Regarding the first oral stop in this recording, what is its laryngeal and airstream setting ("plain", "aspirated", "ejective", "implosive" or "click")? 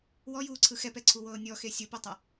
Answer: click